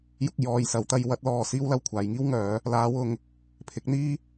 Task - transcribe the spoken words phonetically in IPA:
j ʊ˧ k̚ j ɔː˨ j s ɐ˨˧ w t̪ ɐ˧ j w ɐ˥ t̚ l ɔː˧ s iː˥ w l ɐ˧ w kʷʰ aː˨˧ j ŋ iː˥ w ŋ œː˨˧ | l aː˨˧ w ʊ˨ ŋ | pʰ ɪ˨˥ k̚ n̪ iː˥

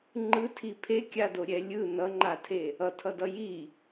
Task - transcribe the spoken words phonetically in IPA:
ŋ͡ǃ ɯ tʰ i pʰ e kʲ a d o ɾʲ ɛ lʲ ɯ n ʌ ŋ͡ǃ a tʰ e | ʌ tʰ ʌ d ʌ j i

